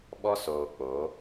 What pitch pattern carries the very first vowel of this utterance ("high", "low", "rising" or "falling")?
high